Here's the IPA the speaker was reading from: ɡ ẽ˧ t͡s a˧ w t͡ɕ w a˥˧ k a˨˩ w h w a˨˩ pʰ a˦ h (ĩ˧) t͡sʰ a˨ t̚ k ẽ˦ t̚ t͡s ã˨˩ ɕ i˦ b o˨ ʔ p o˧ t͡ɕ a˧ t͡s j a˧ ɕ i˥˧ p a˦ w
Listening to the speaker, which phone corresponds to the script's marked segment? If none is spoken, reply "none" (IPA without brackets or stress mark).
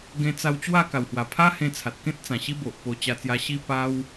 ẽ˧